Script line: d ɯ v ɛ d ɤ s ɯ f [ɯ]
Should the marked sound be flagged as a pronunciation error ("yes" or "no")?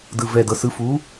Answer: yes